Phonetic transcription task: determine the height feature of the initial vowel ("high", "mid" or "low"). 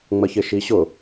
mid